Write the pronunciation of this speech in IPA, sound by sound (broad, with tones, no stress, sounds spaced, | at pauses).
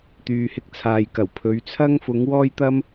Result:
t̪ yː˨ h ɪ˧ k̚ t͡sʰ aː˨ j k ɐ˨˩ w pʰ ɵ˨˧ ɥ t͡sʰ ɐ˥ ŋ f ʊ˨˧ ŋ w ɔː˥ j t̪ ɐ˥ m